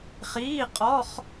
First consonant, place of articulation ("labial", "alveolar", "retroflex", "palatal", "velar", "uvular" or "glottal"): uvular